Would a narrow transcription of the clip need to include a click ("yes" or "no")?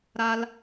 no